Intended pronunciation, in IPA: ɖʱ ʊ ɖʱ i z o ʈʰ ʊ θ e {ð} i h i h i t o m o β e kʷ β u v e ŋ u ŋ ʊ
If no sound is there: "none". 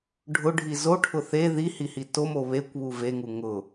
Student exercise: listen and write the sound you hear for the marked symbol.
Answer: ð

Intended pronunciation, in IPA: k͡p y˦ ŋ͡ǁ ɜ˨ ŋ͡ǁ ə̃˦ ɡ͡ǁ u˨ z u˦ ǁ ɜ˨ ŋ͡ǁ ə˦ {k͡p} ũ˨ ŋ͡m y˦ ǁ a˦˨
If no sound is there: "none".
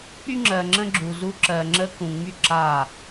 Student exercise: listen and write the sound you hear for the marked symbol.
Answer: k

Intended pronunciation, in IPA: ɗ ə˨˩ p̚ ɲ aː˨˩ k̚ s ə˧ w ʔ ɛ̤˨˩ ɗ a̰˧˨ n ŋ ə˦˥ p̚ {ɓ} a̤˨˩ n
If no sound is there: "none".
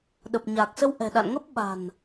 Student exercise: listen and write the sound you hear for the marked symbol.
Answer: ɓ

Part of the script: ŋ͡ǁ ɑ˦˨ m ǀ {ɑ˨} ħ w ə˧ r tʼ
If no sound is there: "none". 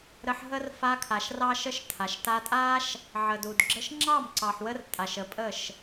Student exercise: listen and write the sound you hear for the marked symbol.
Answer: ɑ˨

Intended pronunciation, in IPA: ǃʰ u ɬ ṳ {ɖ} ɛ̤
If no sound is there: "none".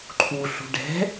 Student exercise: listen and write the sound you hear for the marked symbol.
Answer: ɖ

